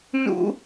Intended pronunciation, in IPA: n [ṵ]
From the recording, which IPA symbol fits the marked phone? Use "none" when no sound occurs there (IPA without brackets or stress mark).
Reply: ṵ